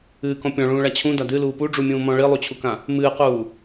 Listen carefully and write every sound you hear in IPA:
ɨːkɔ̃ pʲɔ̃ɭũːɭa t͡ɕʰũda dɨluː puɖ͡ʐumʲũːmɔ̃ ɭilˠut͡ɕʰukã | mɨːquː

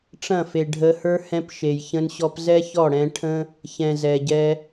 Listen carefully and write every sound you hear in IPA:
ʈ͡ʂɐ̃˦˨fe˨ɖʱə˧hə˞˦ hɛ̃˧pʃe˨jçə̃˧nɕɔ˧p zɛ˦çɔ˦˨ɽɛ̃˧ ʈʰə̃˦ | çɛ̃˨zɛ˨ɟɛ˧

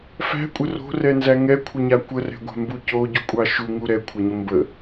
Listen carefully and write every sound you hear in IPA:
fæ̤kʷʼə ro̤rɛnzæ ŋɛkʷʰʌɲa kʷərɛ̤ɡʷa̤mbu coɟukʷʼɑ ʃuŋu ɾɛkʷʰɐɲə mbə

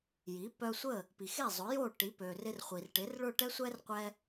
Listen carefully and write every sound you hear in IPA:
ji˩˥pœ˧sʷə˥˩ | pi˩xe˥˩zˤʊ˩˥jo˥˩ ʈi˩˥pø˩rɪ˧r χʷi˩rʈɪ˩˥rɭʊ˥˩ʈɛ˥ sʷɛ˥rqʷɛ˧

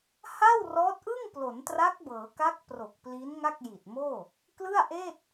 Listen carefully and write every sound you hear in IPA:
ha˥˩wrɔː˦˥t̚ʔɯ˥˩ŋ plo˩˦ntra˦˥k̚bɤː˩˦ka˦˥k̚ pro˨˩k̚pli˦˥n ŋa˥˩k̚ji˨˩t̚moː˥˩ | klɯ˥˩a̯ʔeː˥˩t̚

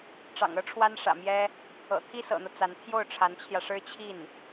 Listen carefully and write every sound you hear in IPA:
ʈ͡ʂɑ̰˨˩ŋɤ˥ʈ͡ʂʰwa˥n ʂä̰˨˩mjɛ˥ | ɤ̰˨˩ t̪ʰi˥sɤ̰˨˩n̪ɤ˦ t͡sa˧˥n t̪ʰjo˥˩ʊ̯ʈ͡ʂʰa˧˥nt͡ɕʰjä˧ʂɻ̩˥ t͡ɕʰi˥˩n

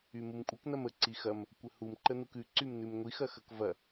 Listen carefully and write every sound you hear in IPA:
ymumkʷʼək nɐmə ǀixɐm | kʷəhum ǃənukʉ ǀymnʉmŋʷi xɐxɐkvɐ

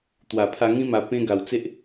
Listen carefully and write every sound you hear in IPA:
t̪wa˨˩pʰa˧ŋĩ˦ ma˧ pẽ˦ ɡa˨˩wt͡se˦ʔ

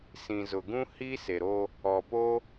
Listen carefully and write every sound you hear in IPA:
sĩ˨zʊ˨ ɡũ˦hi˦ se˨ɾo˦ | ɔ˨po˦

